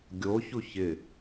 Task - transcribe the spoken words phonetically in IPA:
ɡʲo çuçɪ

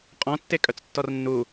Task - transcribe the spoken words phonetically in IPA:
qʼɔ̃tːe kʼœt͡stːɔrnːu

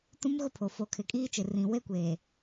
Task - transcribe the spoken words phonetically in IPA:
tũ˦mɣʊ˦pʰo˨ fo˨kʰɪ˨kʼiː˦t͡ʃɪ˨ rĩ˨ we˦kʷeː˨

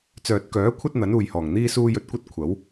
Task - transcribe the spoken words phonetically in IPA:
t͡sœː˨t̚kœː˨˥ kʷʰɐ˥t̚n̪ɐ˨˥nuː˨jhɔː˨˩ŋ n̪iː˥suː˥ jɵ˧t̚kʷɐ˥t̚ kʷʰɐ˨˥w

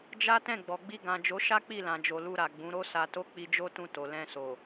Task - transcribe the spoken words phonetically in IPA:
d͡ʒa˦ tɛ̃˦˨ɡ͡bɔ˨ɡ͡bi˧ ɡã˨d͡ʒo˨˦ ʃa˦k͡pi˦˨lã˨d͡ʒo˨ lu˧ɾa˨ɡ͡bũ˨˦ ɾo˦sa˧to˦ k͡pi˧d͡ʒo˦tũ˧to˨ lɛ̃˧so˨

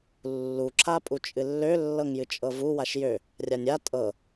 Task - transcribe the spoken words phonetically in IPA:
lːu ǁʰapʼut͡ʃʼɨlːø lːɤŋjɨt͡ʃʼɤvu waʃjø | rʲanʲa tʼɤ

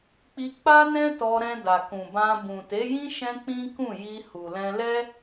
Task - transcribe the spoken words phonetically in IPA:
k͡pi˧k͡pa˦nɛ̃˦ tɔ˧ɾɛ̃˧ da˨kũ˨bã˧ bũ˨te˨˦jĩ˦ ʃɛ̃˦k͡pĩ˦kũ˦˨ji˧ hu˨lɛ̃˧lɛ˦

